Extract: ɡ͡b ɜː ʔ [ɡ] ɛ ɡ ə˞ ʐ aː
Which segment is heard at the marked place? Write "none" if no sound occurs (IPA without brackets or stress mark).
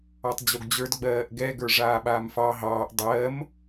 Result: ɡ